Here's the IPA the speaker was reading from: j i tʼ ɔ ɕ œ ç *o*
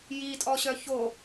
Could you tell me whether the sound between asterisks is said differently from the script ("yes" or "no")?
no